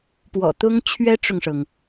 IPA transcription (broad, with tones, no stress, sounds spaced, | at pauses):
p w ɔ̰˨˩ t̪ ʊ˥ ŋ t͡ɕʰ ɥ ɛ˥ ʈ͡ʂ ʊ˨ ŋ ʂ ɤ˩ ŋ